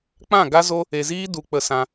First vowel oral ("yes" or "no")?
no